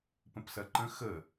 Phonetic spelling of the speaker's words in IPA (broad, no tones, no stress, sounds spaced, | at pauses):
p ə̃ p s ɐ ǃ ə̃ x ə